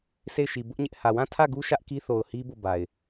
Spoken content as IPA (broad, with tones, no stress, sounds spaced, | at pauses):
s e˦˨ ɪ̯ ʃ i˨ b ʊ˦ ʔ ɲ ɪ˦ ʔ h ä˨ w ã˦˨ tʰ ä˦˨ ɡ u˦ ʃ ä˦ ʔ k i˦ θ o˨ ʊ̯ h i˦ b o˦˨ b a˨ ɪ̯